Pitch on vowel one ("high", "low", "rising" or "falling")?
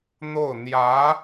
falling